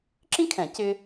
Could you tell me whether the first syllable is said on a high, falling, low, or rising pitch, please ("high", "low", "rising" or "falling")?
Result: high